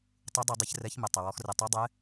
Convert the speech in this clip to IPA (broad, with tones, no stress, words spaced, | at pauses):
tˤu˨˦dˤe˧˩˧ dˤɪ˨˦ç rɛ˨˦çmɪ˩ tˤɪ˩wɔ˨˦xrɪ˧˩˧ tˤɛ˨˦dˤɛ˨˦